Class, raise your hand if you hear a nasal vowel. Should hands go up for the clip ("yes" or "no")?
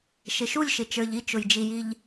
no